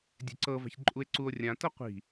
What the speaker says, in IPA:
dʲ ɛ̤ ǀ ɤ v a̤ ç ǃʼ u e̯ ǀ u o̯ rʲ ã t ɤ qʷ i̤

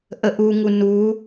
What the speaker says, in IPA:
ʔ ə ʔ u ŋ u n u

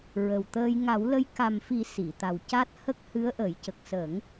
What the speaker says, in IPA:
ɹ ə˨˩ w t̪ əː˧ j ŋ a˨˩˦ w l ə˧ j k a˨˩ m f i˨˩˦ s i˨˩˨ t̪ a˨˩ w c a˦˥ t̚ h ə˦˥ k̚ h ɨ˧˥ ə̯ ʔ ə˨˩˦ j c ə˨˩ k̚ s ə˨˩˦ ŋ

